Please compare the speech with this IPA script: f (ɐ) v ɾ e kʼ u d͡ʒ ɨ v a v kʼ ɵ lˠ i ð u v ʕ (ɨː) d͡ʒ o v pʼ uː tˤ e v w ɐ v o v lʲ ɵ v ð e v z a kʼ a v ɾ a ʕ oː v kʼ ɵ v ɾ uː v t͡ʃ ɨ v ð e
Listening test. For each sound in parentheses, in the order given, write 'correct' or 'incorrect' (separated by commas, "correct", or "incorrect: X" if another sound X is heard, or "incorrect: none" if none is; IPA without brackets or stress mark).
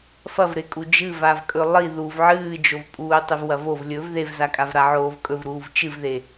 correct, correct